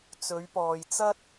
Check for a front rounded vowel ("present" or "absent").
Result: absent